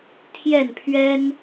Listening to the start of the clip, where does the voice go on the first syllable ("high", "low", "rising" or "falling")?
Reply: falling